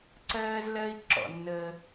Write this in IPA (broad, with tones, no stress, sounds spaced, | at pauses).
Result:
ǀ ɜː˦ z l ɜ˦ i̯ ǁ ɔ̰˨ nː əː˦